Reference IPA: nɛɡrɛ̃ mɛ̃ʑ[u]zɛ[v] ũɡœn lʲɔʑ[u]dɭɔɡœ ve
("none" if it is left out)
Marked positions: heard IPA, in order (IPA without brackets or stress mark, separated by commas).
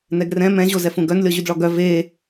o, f, y